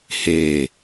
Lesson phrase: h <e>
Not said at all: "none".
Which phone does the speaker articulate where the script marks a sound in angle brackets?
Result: e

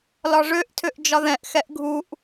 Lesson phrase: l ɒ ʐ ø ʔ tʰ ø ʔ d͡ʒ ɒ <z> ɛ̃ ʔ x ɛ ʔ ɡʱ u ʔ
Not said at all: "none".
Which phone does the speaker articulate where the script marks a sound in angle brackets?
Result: ð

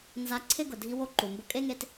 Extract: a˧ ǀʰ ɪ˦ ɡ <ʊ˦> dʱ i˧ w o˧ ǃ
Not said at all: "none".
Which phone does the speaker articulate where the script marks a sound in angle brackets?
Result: ʊ˨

